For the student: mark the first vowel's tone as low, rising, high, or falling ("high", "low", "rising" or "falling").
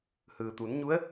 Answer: low